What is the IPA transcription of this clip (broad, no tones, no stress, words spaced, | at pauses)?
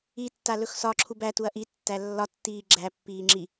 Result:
itːa lɵxsɒǁʰub ætuɐ̯ ʔi tːælːɒtːiː ɡ͡ǁæpːiː ŋ͡ǁi